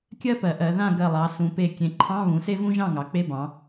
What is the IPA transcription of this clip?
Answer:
kʲɜ˥pɜ˩˧ʔɜ˩˧ ðã˥˨ɡɜ˧˩lˠɑ˩˧ sũ˩˧pe˧˩ kʲẽ˩˥ǃʰɑ̃˧˥˧ βũ˩˥se˥vũ˥ ʒɑ̃˥˨ŋɑ˩˥k͡pe˧˥˧bɑ̃˩˧

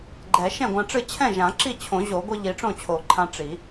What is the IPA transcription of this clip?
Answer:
ɡ͡ǃɛ˨˩˦ ʃɛ̃˥˩ɡʷã˧ʈ͡ʂɨ˥˩ t͡ɕʰɛ̃˥˩ʒã˨˩˦ ǁi˥˩t͡ɕʰõ˨˩˦ʑo˨˩˦ɡʷɨ˧ ʎi˨˩˦ʈ͡ʂõ˥˩t͡ɕʰo˨˩˦ǃʰã˧ ʈ͡ʂi˨˩˦

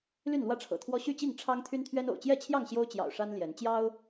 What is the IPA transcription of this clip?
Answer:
ly˥˨nlwä˥˨ʈ͡ʂʰɤ̰˨˩t̪ʰwɔ˦ ɕy˥˨t͡ɕi˥˨ŋ ʈ͡ʂʰɑ˦ŋ t̪ʰy˦nt̪ʰɥɛ˦n o̰˨˩ʊ̯t͡ɕjɛ˥˨t͡ɕʰjɑ˥˨ŋ ɕjo˦ʊ̯t͡ɕjɑ̰˨˩ʊ̯ ʂa˦n ljɛ˨˦n t͡ɕjɑ˦ʊ̯

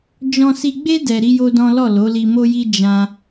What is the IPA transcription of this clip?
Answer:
d͡ʒɔ̃˧si˧ɡ͡be˦ dɛ˧ɾi˦jo˦dɔ̃˦ lɔ˦˨lo˨˦ li˧mo˦ji˦ d͡ʒã˦

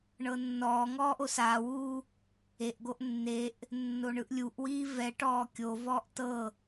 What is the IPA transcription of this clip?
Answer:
ɳɤnːɔːŋɔː ʔosaːwuː | eʔɡoʔ nːeʔ | nːoɳɯʔlʲuʔwiː vɛʈɔː kʲovɔːʔ tɤ

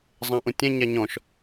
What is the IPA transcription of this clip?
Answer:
zˤãʔũtʲɛ̃ɲa ɲɔ̃ʃ

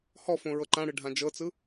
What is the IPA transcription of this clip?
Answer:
hɔfõ ɹɤǃãɽɯ ɖʱãd͡ʒɤt͡sɯ

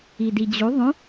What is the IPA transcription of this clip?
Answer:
idid͡ʑu ðˤũ

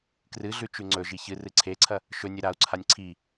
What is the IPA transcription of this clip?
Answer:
krɨɮʉt͡ʃʉ ŋ͡ǀɵʒi çɨrɨ ǀʰeǀʰɐ | ʃɵnʲɨ ɾau̯ǀʰanʲ ǀʰi

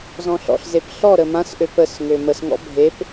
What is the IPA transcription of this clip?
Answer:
zɔ̃ɬɔ̰ɬzep ɬɔ ɾəmãsʔøp əs ŋøməsŋɔ̰ bʱep

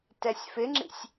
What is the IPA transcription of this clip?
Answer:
tɛsʲfɪŋ͡ǁḭsʲ

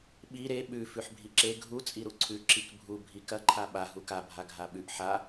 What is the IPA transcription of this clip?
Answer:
ɓi ɾe ɓʉ fʉħbʱiǁe ɡʱu t͡sʼiɾuǀʰʉ ǁikbʱu bʱikɐ ǃʰaɓa ɦuka bʱaɡʱaɓʉʔ ħa

